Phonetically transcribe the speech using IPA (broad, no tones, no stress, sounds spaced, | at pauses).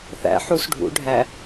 θ æ̰ ħ u s ɖʱ ṵ ɖʱ æ